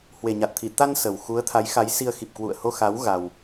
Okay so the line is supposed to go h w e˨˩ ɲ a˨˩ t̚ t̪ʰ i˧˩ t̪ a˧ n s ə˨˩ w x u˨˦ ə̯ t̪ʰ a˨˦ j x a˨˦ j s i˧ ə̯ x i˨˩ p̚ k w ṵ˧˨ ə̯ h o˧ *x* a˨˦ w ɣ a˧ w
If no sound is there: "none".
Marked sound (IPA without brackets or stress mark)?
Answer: x